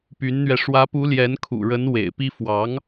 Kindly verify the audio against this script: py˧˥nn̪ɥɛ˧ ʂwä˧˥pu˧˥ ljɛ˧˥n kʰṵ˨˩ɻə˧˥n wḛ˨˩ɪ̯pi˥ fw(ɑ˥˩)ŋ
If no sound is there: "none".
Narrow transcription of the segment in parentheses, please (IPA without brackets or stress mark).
ɑ˧˥